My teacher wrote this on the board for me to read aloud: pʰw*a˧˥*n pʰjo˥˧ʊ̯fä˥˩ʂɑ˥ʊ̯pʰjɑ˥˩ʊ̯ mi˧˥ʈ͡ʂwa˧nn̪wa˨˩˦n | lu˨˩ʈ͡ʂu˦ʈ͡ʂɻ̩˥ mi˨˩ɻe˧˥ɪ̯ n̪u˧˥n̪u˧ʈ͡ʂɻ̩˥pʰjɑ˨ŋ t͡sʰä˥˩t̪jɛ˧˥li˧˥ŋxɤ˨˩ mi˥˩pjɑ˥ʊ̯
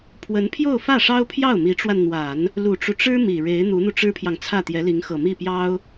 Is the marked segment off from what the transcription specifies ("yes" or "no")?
yes